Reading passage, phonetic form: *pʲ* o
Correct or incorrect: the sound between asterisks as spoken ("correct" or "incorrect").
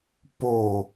incorrect